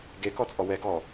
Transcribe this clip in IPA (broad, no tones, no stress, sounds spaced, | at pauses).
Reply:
ɡ e k ɔ t͡sʼ ɔ w ɛ ɡ ɔ